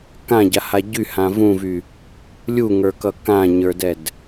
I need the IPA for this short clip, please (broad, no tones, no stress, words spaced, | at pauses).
kãɟaha ɟyhã vũvy | lʲuŋə˞kʌ kãɲə˞dɛd